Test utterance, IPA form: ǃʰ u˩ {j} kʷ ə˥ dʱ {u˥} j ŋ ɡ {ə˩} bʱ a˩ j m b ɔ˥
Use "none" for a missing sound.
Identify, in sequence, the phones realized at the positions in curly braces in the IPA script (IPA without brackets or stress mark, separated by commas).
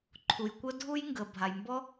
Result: j, u˥, ə˩